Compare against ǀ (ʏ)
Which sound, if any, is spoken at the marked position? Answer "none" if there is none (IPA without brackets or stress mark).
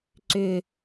ʏ